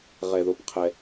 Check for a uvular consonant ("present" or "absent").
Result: present